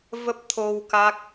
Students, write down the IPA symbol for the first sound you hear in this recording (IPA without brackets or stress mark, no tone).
v